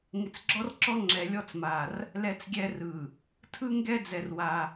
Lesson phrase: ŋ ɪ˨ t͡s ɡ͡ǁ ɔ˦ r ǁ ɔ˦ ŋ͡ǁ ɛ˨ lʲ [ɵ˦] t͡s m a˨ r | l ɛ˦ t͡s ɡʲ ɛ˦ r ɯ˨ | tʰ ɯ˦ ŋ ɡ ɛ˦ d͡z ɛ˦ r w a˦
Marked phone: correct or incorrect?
incorrect: ɔ˦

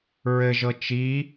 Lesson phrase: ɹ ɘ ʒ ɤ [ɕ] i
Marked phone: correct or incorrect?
incorrect: t͡ʃ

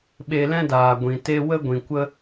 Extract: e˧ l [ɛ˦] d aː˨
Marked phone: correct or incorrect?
incorrect: ɛ̃˦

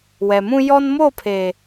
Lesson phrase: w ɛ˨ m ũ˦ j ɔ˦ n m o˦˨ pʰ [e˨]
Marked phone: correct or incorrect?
correct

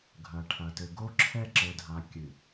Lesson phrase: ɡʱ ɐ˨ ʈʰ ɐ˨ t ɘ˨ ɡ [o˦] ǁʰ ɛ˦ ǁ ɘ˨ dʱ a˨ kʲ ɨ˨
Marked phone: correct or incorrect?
correct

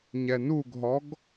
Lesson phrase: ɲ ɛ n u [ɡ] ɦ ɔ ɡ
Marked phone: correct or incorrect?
correct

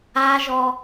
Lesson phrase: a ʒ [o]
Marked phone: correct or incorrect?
incorrect: ɔ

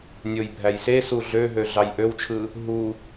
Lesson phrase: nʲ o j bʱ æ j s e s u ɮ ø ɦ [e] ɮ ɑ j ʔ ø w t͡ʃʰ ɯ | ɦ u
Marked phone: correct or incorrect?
incorrect: ø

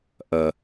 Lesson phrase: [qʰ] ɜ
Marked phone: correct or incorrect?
incorrect: ʔ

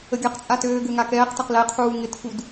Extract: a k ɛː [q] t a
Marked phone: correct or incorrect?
correct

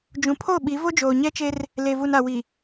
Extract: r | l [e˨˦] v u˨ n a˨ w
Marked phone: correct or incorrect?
incorrect: e˨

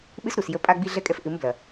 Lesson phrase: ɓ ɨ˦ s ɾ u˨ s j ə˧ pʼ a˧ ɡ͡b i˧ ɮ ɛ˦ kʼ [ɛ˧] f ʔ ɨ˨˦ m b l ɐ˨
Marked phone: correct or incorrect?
correct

